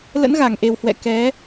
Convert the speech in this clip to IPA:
l ə̰˧˥ n ɣ a˧˩ ŋ ʔ e˨˩ w h w ɛ̰˧˨ k ɛ˨˦

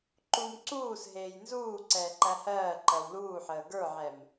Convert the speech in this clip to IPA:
ǃ u m ǀ uː s ɦ eː j n z uː ǀ ɛː ǃ æ h ɜː ǃ ɜ w l uː ħ əː ɡ ə˞ ʕ ɛ m

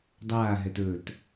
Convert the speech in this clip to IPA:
dˤ aː ɦ ɛ t ɵ t

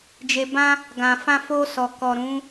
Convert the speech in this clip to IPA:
d͡ʒ e˧ b ã˦ | ɡ ã˨ f ã˧ f o˧ s ɔ˨ k ɔ˨ ɾ ũ˨˦

